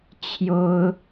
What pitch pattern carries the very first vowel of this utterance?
high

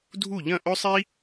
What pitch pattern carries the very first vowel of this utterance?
falling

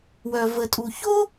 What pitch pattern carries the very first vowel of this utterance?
low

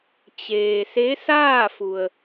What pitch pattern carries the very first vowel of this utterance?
low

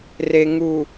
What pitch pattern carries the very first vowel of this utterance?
low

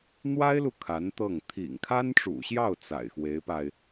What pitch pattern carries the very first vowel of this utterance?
high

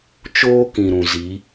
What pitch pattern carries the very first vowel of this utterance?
high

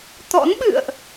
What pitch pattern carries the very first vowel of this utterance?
rising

